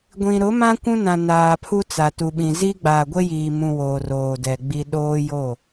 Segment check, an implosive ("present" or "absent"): present